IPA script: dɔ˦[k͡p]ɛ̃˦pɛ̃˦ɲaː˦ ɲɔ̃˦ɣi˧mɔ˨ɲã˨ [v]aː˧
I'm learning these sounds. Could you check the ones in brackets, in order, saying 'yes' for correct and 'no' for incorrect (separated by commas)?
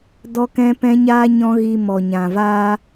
no, yes